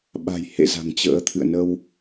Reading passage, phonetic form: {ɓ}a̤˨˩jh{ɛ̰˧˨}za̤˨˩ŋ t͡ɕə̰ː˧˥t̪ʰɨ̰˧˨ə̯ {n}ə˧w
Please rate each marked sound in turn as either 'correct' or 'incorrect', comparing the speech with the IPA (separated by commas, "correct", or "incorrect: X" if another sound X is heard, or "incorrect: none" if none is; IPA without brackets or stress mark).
correct, incorrect: ḛ˧˨, correct